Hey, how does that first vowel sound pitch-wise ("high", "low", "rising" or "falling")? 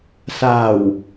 low